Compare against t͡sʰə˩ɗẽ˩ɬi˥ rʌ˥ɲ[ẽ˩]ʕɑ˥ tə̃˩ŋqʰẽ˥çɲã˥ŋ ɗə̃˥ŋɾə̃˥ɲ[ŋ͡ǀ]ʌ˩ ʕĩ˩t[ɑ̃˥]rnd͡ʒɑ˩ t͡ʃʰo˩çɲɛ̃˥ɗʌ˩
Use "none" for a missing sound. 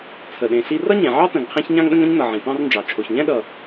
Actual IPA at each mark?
ẽ˩, n, ɑ̃˥

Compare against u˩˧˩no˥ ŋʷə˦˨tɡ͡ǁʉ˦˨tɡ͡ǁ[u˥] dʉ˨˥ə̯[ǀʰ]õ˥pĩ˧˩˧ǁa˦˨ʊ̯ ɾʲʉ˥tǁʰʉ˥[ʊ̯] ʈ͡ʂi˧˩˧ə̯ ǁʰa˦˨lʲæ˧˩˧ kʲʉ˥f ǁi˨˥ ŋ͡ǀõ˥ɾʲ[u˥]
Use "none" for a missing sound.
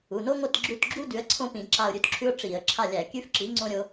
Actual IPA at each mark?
u˥, ǀʰ, ʊ̯, o˥

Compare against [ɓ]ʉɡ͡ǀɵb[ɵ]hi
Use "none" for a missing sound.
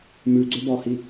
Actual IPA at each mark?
m, ɔ

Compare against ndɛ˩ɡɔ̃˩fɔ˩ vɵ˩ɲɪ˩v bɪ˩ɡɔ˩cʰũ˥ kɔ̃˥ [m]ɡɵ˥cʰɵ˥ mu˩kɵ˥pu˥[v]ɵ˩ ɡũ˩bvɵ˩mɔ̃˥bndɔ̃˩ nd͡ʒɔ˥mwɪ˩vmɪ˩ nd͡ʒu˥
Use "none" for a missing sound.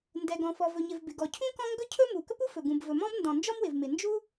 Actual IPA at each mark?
ŋ, f

